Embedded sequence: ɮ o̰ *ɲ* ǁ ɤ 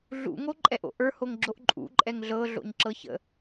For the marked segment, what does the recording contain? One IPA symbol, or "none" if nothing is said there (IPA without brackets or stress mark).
ɲ